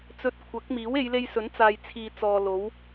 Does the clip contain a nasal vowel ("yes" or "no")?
no